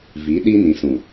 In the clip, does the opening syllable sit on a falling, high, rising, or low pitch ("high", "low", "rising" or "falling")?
rising